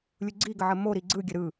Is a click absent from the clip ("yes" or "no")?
no